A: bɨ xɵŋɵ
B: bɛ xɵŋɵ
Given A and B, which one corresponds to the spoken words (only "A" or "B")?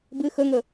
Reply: A